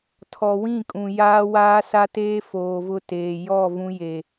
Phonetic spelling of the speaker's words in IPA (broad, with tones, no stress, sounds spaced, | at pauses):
tʰ ɔ˨ w ĩ˦˨ kʼ ũ˨ j aː˦ w aː˦ s a˦ t eː˦ f oː˨ v ʊ˦ t eː˨ j ɔ˦˨ v ũ˦ j e˨